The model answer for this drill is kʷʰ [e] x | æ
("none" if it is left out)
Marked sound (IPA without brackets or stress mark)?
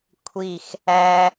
i